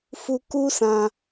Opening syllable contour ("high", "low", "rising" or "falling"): low